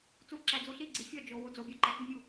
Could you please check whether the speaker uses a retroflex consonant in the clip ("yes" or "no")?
no